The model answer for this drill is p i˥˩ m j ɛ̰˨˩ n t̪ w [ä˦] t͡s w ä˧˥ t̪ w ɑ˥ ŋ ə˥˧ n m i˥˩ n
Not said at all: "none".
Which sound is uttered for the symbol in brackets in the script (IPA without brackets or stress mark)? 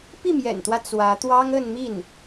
ä˦